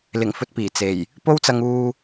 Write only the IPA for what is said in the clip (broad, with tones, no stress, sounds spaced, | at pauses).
l ɪ˨˩ ŋ f ɵ˧ t̚ p iː˨˩ t͡s e˨˩ j | p o˥ w t͡s ɐ˧ ŋ uː˧